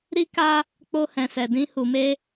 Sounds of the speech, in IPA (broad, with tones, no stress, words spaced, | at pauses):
ɾi˧ka˧ | k͡po˧hɛ̃˨sɛ˨dĩ˧ hu˨me˧